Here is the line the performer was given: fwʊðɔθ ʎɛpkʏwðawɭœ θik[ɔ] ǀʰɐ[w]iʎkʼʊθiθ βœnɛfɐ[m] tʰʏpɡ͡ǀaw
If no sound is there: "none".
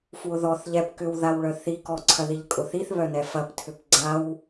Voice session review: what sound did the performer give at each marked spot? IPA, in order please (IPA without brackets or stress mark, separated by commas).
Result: ɔ, ð, p